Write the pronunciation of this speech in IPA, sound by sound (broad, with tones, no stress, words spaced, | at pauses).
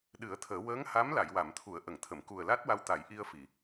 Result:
ɗɨ˨˩˦ə̯t̪ʰəː˨˩˦ wəː˧˥ŋha˧˥m la˨˩˨jwa˨˩˨mt̪ʰu˨˩˦ə̯ ʔə˨˩˨ŋt̪ʰə˨˩˨m ku˨˩ə̯la˦˥t̚wa˧wt̪a˨˩˦j ʔi˧ə̯fi˨˩˨